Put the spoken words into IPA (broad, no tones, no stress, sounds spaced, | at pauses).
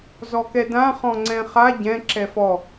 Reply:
z ɔ k ɛ d ã χ ɔ̃ ŋ͡ǀ ɛ̃ χ a ɟ ɛ̃ ǁ ɛ f ɔ